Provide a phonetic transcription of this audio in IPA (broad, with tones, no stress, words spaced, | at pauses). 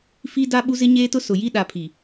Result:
fi˦da˦ ɓu˦zɪ˦ɲeː˦tʊ˦ sʊ˨ji˦ ɗa˨pʰi˨